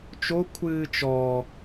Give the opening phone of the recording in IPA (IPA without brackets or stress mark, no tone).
t͡ʃ